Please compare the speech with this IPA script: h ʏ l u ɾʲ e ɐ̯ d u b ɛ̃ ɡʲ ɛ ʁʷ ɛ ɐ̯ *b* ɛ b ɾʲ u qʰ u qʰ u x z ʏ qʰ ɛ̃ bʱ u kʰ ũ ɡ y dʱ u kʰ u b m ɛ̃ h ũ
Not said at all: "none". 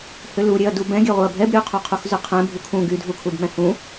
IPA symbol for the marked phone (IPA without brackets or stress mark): bʱ